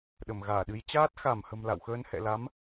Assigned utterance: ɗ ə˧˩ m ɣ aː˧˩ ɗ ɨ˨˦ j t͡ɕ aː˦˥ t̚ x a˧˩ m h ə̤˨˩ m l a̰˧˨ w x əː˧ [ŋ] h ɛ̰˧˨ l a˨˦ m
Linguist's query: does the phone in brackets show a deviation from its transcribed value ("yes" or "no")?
yes